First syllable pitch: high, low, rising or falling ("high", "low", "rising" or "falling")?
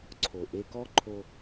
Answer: low